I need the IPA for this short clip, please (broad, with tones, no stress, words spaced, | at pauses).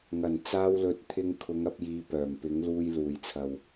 ŋɐ˨˩nt͡saː˧wlɵ˨˥t̚ t̪ʰɪ˧ŋ kʰʊ˨˧ŋɐ˨˥p̚jiː˨˧ pœː˨˩mpɪ˨˥ŋluː˧j luː˨˩jt͡sʰɐ˨w